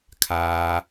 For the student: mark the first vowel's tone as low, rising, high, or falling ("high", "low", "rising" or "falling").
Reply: low